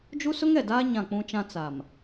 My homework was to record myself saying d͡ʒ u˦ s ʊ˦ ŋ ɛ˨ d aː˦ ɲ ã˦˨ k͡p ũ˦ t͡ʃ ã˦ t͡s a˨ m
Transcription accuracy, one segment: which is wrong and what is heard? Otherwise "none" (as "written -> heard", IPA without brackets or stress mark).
none